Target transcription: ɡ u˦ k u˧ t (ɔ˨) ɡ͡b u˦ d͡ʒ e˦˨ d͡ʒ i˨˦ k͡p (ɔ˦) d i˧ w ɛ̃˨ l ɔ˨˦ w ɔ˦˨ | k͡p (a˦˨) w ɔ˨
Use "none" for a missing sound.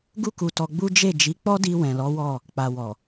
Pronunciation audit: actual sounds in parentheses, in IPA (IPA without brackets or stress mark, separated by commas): ɔ˧, ɔ˦, a˨